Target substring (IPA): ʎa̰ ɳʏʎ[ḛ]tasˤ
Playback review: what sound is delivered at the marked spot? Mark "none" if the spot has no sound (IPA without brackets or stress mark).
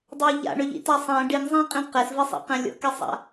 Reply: ḭ